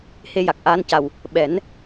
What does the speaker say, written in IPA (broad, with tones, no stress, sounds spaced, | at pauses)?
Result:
h e˧ j a˨˩ k̚ ʔ aː˧ n c a˨˩ w | ɓ ɛ˨˩˦ n